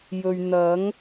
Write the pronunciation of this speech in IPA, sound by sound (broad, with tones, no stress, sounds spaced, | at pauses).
j ɵ˨ ɥ n̪ ɐ˨˥ ŋ